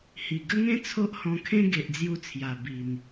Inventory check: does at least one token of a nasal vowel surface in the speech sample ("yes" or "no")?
yes